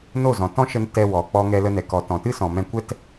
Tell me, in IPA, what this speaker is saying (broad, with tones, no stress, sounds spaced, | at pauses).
n o˦˨ z ɔ̃˨ t ɔ̃˦ ʃ ə˧ n t ɛ˧ w ɔ˨ k͡p ɔ˧ ŋ ɛ˧ l ə˧ n ɛ˨ k ɔ˨ t ɔ̃˨ t ɨ˦ s ɔ̃˨ m ɛ̃˧ kʷ ɛ˦ t